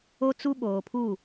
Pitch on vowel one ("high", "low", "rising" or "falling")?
high